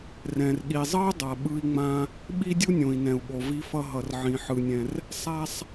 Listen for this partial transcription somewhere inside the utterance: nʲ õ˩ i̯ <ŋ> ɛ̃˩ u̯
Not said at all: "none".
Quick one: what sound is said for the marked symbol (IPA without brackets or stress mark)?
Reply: n